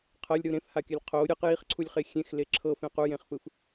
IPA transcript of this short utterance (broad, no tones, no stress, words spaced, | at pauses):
qʰɤlʲɾɯ ɾẽfhakʲalʲ qʰo ɾʲɯq jiχǀʰulʲχe xʲẽxle ǁʰɤfẽ qujẽχfɯf